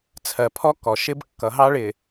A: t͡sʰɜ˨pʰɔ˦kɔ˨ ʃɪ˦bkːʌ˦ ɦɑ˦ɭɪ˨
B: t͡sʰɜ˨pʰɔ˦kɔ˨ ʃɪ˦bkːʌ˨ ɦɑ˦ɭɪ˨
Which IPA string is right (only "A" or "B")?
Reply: B